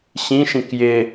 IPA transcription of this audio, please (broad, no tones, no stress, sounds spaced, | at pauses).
ɕ ĩ ʃ ĩ k j ɪ